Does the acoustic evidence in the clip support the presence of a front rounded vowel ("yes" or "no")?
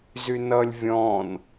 yes